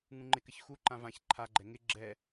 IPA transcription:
ŋ ũ ŋ͡ǃ ɪ k ɘ ç x u ǃ ã v ã ç ǃʰ a ɡ͡ǃ ɛ ŋ ɪ ɡ͡ǁ ɛ

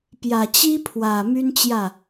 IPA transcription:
p j ä˨˩ t͡ɕ i˦ pʰ w ä˨˩ m y˦ n t͡ɕ j ä˥˨

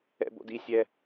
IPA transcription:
ɛ̰ b o̰ d i sʲ ɛ

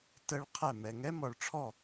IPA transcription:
t ə˦˥ ɭ qʰ ɛ˥˨ m ɛ˧ ŋ ɛ˦˥ m ɔ˧ ɭ ʈ͡ʂʰ ɔ˥˨

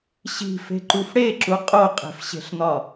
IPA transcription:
ɕ i̤ f e̤ ǃ u f ɽ e ǁ u qʼ o qʼ e̤ f ɕ e̤ ɬ n̪ ɒ

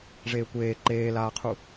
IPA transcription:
ʐ eː kʷ eː ǃ eː l aː qʰ u

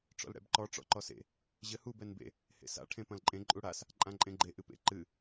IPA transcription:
ʈ͡ʂ ɔ̰ l ɽ ɛ̰ b ǃ ɔ ʈ͡ʂ ɔ̰ ǃ ɔ s ḛ | ʑ ɘ h u b ɛ n b ḛ | h ḛ s a̰ ʈʰ ẽ p ɐ̃ l ǃʼ ẽ ǃʼ u ɽ a s | ǃʼ ã ǃʼ ẽ ɡ͡ǃ e ʔ ɨ p ḛ ǃ ɨ

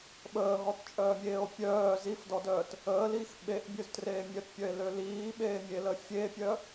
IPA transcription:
ɓ əː ɦ ɔ t t͡ʃʼ œː mʲ eː o̯ pʲ œː z i f d ɔ d œː t | əː l iː x ɓ e ʔ bʲ ø z t r eː mʲ œ t pʲ œ e̯ l ø l iː ɓ eː mʲ e l ə fʲ e pʲ œ

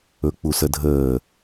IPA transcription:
ɵ k͡p u s ə dʱ əː

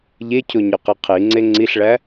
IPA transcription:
ʎ e cʰ o ɲ ɒ q i qʰ i ŋ͡ǀ e ŋ͡ǀ i ɬ ɭ æ

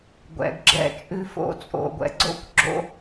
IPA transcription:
ɡʷ ɛ̰˨ ɡ ɡ͡ǁ ɛ̰˦ t͡ʃʼ ʉ˦ f o̰˦˨ t͡sʼ o̰˨ ɡʷ ɛ̰˨ ɡ͡ǀ o̰˦ kʷ ɡ͡ǁ o̰˦

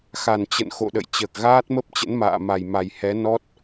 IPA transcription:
x a˨˩ n t͡ɕ ə̰˧˨ n x o̰˧˨ ɗ ə̰˧˨ j t͡ɕ əː˨˩ k̚ ɣ aː˦˥ t̚ m ə˦˥ p̚ t͡ɕ ə̰˧˥ n m a̰ː˧˨ m a˨˩ j m a˨˩ j h ɛ˨˦ n ɔ˦˥ t̚

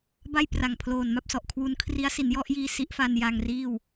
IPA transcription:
b a˥˩ j p r a˨˩ ŋ pʰ l oː˨˩ n m a˥˩ p̚ s ɔ˨˩ ʔ kʰ w u˧ n kʰ r i˦˥ a̯ s i˩˦ n j ɔ˥˩ ʔ j iː˧ s i˦˥ ʔ f a˧ n j a˧ ŋ r iː˥˩ w

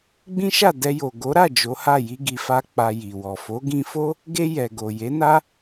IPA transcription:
ɡ͡b ĩ˦ ʃ a˦˨ d ɛ˧ j o˨ ɡ o˨˦ ɾ a˦˨ d͡ʒ o˨˦ h a˦˨ j i˧ ɡ i˨ f a˧ k͡p a˧ j i˨ w ɔ˨ f o˨˦ ɡ ĩ˧ f o˦ | ɡ e˧ j ɛ˨ ɡ o˨ j e˨˦ n a˦

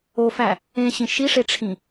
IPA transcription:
o f æ | ẽ ɕ ĩ ʃ i ʂ e ʈ͡ʂʰ ĩ

